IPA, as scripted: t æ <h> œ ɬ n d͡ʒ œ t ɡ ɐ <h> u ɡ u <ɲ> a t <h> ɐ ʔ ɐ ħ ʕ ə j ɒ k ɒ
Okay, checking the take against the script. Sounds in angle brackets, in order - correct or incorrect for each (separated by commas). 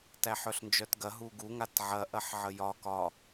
incorrect, incorrect, incorrect, incorrect